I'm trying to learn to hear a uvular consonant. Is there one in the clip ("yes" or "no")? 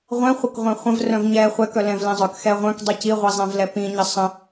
yes